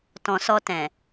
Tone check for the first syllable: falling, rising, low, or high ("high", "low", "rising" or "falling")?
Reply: low